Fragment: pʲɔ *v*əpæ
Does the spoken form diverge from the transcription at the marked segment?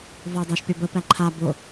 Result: yes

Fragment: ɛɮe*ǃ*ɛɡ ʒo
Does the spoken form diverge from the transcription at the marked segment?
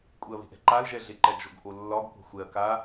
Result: no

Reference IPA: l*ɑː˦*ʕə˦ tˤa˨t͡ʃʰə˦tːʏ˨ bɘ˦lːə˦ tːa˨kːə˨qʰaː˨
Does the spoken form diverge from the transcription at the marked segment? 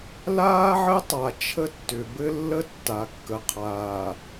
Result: yes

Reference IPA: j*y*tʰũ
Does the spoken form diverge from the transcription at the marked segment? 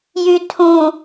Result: no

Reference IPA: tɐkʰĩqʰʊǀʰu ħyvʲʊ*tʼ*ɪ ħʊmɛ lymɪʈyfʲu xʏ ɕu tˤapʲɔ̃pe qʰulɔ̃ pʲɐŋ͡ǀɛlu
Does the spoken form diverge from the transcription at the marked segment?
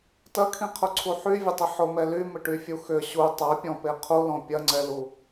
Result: yes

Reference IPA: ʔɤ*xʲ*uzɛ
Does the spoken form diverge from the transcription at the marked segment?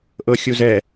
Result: no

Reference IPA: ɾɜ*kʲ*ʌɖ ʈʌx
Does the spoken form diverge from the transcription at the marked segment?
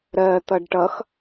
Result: yes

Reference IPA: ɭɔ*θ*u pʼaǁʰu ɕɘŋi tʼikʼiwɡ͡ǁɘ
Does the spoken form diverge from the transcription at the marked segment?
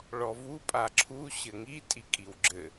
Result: yes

